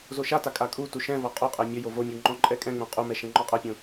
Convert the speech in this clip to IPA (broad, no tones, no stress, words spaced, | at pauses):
zoʃata kʼakʼutu ʃɛ̃vɔ qʼoqʼɛ mʲʌjo vomʲu ŋ͡ǃɔ̃ǃʼɛkʼɛ̃ŋ͡mõ qʼumɛ ʃɛ̃ŋ͡ǃɔqʼʌpʲõ